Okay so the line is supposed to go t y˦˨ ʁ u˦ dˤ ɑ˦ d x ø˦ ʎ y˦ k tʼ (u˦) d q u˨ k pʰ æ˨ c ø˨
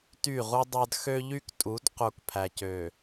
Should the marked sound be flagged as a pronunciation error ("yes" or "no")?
yes